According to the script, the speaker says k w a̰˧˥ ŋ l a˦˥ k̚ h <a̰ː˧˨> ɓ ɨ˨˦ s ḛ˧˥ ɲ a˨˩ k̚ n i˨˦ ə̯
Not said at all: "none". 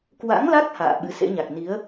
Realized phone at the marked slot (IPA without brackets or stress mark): a̰ː˧˨